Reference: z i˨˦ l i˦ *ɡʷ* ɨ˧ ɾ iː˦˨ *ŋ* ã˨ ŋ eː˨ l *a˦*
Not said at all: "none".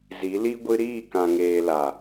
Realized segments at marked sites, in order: ɡʷ, k, a˨

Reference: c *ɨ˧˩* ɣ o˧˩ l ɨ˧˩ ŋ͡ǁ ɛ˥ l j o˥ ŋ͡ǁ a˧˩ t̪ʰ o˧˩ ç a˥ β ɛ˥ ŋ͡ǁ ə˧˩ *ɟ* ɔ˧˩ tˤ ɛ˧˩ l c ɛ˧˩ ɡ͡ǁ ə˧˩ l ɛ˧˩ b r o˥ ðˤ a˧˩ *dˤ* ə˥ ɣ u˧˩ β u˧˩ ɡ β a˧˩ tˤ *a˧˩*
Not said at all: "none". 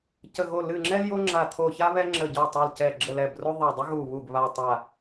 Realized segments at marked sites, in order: ə˧˩, ɟ, dˤ, a˧˩

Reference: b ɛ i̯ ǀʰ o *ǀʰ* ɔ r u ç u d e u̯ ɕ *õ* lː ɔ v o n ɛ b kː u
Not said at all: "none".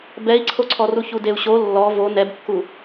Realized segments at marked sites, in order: ǀʰ, o

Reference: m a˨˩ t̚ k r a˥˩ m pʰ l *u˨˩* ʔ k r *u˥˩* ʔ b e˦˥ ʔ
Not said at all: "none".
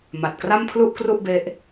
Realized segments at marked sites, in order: u˥˩, u˥˩

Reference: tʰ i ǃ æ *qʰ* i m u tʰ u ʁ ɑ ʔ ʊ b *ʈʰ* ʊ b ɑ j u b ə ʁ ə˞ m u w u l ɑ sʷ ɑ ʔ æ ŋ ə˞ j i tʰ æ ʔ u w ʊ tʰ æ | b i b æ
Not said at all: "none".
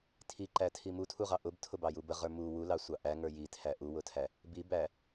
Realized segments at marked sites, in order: tʰ, tʰ

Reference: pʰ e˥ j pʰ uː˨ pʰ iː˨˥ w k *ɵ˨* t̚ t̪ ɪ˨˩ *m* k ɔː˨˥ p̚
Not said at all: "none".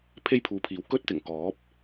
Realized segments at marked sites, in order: ɵ˥, ŋ

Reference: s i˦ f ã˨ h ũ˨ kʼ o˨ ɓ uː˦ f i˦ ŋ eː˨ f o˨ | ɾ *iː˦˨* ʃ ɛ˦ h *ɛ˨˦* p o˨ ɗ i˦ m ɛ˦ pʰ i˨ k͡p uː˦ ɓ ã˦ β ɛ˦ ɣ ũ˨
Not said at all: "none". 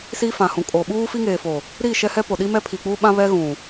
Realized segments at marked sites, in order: iː˦˨, ɛ˦

